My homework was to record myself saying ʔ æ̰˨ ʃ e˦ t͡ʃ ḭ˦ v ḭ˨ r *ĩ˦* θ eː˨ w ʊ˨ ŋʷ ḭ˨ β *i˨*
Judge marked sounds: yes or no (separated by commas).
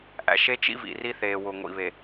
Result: no, no